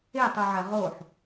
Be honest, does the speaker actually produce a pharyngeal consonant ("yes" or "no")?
yes